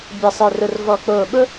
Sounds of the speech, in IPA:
bʲa˧˩sˤɛ˧˩rʊ˧˩r vɔ˧˩k͡poː˧˩ ɓʊ˥

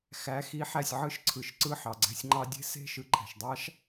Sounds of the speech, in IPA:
xæ˨˦ xi˨˦ħæ˨sʲ ʕɯ˦ʃǀʰɯ˨ʃ ǀɯ˦˨ħɑ˨ɡ͡ǀæ̤˦sʲŋ͡ǃɑ˦ dʲe̤˦se̤˦˨ ʃɯ˧ǃʰæ̤˨ʃdˤɑ˦ʃ

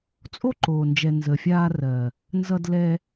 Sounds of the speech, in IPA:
t͡sʼo˦ǃoː˨nd͡ʒɛ˨ nzə˨fʲaː˧ rɜ˨ | nzʌ˧d lɛ˧

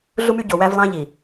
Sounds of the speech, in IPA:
ɮu˦my˦ ɟo˨ wæ˦vlˠɑ̃˦ʎi˨

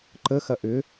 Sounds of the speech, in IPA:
ǃəxɐ ʔʏ

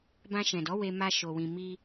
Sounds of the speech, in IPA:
bã˧ʃɛ̃˨dɔ˨˦ we˧ma˧ ʃo˧wĩ˧ mi˧

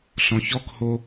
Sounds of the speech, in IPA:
ɬɔ̃çɔkho

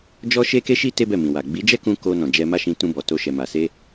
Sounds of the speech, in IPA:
d͡ʒɔ˦ʃe˦ke˦ʃi˦ te˦bɛ˦˨ mĩ˨wa˨ ɡ͡bi˨˦d͡ʒɛ˦kũ˧ ko˧ nɔ̃˨d͡ʒɛ˧ma˦ ʃĩ˧ tũ˧bɔ˨to˧ʃɛ˨ ma˨se˧

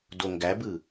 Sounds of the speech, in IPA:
doŋɡæbɯ

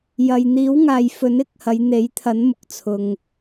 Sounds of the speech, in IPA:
jɐ˨jn̪iː˨˥wŋaː˨jfɵ˨˥n ɪ˧k̚hɐ˨˧jn̪e˨˥jt̪ʰɐ˨˥n mʊ˨k̚t͡sʰʊ˨ŋ

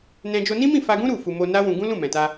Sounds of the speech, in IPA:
nɛ̃˧ d͡ʒo˧nĩ˦mĩ˦˨ fa˧ɡũ˦ ɾu˦˨ fu˧ mo˧ na˦wũ˧ ɡũ˦lũ˦˨mɛ̃˨ta˧

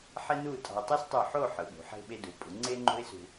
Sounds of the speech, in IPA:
ħe˥nu˥˧tʼɑ̤˧ʊ̯ tˤe˥stˤy˧˩ħo˥˧ ħɯ˩˧ɓṳ˩˧ ħe̤˧ɓe˧du˩˧pʼu˩˧ ŋ͡ǀe˥ŋ͡ǃo̤˥ɪ̯sṳ˧

